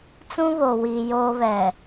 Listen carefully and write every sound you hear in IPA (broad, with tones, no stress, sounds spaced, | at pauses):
t͡s ũ˦ β o˨ w iː˨ j oː˦ β ɛ˨